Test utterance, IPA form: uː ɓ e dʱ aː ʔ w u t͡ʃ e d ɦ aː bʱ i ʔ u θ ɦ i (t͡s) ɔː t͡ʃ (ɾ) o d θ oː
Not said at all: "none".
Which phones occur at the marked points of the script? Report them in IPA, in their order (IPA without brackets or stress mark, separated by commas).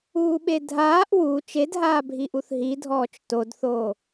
dʱ, t